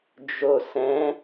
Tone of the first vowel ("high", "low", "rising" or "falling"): low